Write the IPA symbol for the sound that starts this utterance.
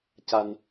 c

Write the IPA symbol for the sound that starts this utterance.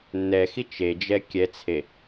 nː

